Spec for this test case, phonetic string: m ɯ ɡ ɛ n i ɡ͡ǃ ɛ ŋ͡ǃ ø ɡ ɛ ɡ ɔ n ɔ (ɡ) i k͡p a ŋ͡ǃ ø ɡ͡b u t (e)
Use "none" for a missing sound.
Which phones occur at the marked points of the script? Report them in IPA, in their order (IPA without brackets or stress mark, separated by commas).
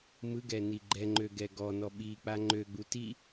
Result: ɓ, i